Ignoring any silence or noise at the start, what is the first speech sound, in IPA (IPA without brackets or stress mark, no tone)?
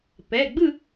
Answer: p